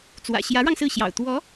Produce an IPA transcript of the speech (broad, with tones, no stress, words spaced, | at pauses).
t͡swä̰˨˩ɕjä˧˥ɻɑ˧ŋ sɹ̩˥˩ɕjɑ̰˨˩ʊ̯ t̪wɔ˧˥